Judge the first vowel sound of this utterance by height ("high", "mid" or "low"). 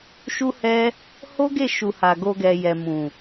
high